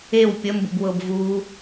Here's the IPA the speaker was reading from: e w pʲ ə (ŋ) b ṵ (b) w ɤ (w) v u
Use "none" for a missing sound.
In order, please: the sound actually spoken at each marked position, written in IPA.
m, b, b

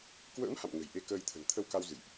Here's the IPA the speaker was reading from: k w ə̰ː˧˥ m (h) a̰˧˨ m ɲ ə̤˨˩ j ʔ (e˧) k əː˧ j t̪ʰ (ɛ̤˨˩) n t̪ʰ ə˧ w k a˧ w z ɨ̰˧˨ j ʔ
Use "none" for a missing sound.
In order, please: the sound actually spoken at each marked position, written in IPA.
h, e˧, ə̤˨˩

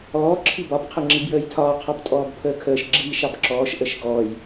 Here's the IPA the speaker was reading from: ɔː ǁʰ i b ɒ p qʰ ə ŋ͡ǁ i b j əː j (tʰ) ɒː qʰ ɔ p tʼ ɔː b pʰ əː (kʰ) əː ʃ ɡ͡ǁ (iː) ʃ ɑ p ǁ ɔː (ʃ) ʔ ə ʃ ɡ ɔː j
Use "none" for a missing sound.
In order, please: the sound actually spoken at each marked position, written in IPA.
tʰ, kʰ, iː, ʃ

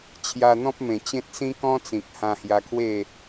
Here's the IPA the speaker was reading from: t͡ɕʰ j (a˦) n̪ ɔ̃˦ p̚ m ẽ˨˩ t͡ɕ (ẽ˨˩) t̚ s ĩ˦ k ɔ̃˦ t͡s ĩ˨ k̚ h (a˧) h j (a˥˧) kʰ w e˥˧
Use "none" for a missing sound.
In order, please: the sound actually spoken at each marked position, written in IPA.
a˧, ẽ˦, ã˧, a˧

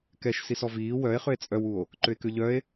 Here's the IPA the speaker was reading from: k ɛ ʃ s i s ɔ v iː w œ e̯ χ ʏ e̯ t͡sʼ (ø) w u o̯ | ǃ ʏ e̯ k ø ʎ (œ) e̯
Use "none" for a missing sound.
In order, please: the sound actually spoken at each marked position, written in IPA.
œ, œ

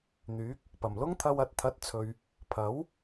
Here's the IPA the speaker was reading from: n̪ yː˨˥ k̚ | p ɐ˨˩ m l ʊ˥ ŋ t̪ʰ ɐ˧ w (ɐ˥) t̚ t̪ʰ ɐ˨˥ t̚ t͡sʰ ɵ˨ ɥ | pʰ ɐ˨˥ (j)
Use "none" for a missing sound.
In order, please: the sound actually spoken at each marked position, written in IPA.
ɐ˨, w

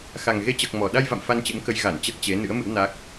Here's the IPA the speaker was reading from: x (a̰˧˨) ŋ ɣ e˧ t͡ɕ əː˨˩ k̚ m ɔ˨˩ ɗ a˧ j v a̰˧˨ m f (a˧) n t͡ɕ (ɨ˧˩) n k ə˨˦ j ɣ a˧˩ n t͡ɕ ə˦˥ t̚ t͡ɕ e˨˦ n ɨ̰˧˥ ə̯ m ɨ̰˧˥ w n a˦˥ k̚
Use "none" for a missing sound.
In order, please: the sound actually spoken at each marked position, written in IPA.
a˨˩, a˧, ɨ̰˧˥

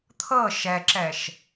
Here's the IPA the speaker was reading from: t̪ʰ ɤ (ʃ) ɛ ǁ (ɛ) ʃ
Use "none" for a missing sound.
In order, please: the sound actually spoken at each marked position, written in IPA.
ʃ, ɛ

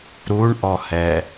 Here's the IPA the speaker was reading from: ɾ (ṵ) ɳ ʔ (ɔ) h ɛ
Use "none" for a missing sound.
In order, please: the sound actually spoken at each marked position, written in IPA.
u, ɔ

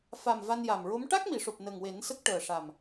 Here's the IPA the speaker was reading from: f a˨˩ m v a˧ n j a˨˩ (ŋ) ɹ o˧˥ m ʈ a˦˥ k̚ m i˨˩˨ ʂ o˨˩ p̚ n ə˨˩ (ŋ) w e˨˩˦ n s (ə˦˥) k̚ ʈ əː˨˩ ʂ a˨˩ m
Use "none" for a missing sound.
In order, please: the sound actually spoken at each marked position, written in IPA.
m, ŋ, ə˦˥

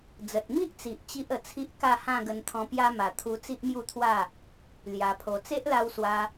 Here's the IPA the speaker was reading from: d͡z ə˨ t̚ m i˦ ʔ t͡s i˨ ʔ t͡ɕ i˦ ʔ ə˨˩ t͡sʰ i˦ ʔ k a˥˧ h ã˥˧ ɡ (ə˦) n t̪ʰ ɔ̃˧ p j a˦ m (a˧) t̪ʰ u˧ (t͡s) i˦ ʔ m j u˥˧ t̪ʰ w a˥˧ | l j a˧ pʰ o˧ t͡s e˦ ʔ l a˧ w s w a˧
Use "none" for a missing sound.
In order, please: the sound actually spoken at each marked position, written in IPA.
ə˧, a˧, t͡s

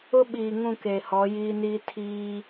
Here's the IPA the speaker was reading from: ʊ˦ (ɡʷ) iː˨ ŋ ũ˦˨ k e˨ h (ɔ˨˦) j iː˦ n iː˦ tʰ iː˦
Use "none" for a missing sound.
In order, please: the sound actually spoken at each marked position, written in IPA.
ɓ, ɔ˨˦

